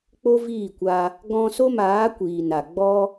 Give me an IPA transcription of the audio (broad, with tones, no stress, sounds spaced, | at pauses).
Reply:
k͡p o˦ v iː˦˨ kʷ a˧ | ɡ ɔ̃˧ s o˦ m aː˨˦ kʷ iː˨ n a˨ ɡ͡b ɔ˦